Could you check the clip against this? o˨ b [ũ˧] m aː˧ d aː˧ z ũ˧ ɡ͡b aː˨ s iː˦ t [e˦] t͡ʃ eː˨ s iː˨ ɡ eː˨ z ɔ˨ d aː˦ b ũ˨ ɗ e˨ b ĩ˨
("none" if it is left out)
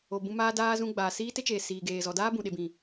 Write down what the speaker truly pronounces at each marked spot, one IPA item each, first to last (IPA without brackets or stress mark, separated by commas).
ũ˧, e˦